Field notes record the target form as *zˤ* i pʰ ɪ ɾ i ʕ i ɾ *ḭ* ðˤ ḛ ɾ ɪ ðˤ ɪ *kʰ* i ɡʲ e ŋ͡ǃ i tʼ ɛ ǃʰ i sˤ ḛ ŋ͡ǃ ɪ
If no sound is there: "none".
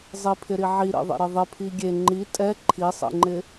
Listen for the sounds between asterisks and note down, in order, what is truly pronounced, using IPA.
zˤ, ḭ, pʰ

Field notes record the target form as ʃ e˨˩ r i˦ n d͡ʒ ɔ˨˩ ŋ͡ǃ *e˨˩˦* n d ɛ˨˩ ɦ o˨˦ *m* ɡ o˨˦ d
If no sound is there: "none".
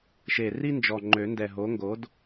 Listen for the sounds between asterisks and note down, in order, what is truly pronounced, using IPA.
ø˨˩˦, ŋ

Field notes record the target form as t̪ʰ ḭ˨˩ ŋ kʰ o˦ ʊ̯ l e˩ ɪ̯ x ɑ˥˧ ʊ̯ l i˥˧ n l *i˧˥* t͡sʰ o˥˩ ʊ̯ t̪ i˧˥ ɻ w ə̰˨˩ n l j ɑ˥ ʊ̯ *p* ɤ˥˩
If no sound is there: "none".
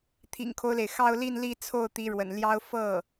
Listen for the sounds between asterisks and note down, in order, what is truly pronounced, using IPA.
i˥˧, f

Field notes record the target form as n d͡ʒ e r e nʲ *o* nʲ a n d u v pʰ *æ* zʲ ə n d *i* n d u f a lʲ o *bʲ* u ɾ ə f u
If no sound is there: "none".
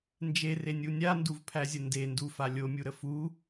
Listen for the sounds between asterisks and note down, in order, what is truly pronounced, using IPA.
u, æ, e, mʲ

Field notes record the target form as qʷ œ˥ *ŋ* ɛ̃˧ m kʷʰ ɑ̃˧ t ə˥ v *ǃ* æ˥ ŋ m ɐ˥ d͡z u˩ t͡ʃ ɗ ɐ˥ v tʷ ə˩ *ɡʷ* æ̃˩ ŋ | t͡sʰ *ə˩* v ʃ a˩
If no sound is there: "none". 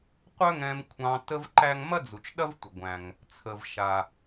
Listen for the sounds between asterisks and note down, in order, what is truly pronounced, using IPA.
ŋ, ǃ, ɡʷ, ə˩

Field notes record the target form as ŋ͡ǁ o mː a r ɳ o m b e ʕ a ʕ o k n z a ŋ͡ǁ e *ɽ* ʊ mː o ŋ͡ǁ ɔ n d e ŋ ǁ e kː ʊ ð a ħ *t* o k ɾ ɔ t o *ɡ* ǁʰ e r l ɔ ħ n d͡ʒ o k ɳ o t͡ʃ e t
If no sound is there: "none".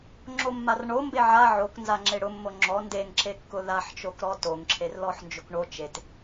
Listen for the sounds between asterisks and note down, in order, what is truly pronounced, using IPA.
ɽ, t͡ʃ, ŋ

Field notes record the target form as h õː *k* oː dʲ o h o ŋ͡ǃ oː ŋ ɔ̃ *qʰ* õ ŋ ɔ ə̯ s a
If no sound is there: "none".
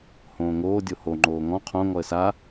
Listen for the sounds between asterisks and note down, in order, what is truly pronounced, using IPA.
ŋ, qʰ

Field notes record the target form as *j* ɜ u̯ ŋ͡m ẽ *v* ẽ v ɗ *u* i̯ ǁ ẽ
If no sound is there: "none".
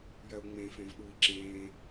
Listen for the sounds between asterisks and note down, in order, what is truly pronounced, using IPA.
j, f, u

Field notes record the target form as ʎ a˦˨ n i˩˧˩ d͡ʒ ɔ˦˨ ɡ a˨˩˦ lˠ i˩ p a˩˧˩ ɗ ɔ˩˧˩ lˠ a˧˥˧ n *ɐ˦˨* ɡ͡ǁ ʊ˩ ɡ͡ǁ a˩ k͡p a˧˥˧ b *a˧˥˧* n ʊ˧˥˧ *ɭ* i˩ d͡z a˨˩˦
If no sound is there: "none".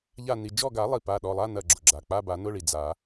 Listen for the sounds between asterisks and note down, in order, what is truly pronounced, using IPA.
ɐ˦˨, a˨˩˦, ɭ

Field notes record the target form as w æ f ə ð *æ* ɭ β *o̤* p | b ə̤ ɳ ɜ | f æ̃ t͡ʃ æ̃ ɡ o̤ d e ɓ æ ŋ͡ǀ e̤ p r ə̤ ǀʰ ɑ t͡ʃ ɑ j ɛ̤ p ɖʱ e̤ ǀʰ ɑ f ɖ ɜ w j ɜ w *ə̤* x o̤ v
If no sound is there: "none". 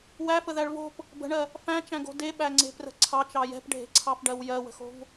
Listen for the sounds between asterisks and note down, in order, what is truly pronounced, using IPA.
æ, o̤, ə̤

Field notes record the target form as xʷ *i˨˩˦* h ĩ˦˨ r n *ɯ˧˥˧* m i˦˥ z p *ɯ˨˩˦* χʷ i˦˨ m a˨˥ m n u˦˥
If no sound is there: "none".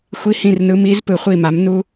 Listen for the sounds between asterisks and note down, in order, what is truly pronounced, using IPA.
i˧˥˧, ɯ˧˥˧, ɯ˨˩˦

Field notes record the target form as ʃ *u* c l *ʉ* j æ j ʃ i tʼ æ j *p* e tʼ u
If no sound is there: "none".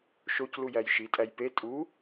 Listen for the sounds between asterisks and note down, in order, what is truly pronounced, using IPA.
o, u, p

